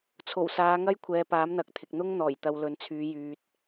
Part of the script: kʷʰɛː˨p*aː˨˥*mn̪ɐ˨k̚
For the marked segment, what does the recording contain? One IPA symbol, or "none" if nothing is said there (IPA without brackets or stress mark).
aː˨˥